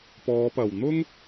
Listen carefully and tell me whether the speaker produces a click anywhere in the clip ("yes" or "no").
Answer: no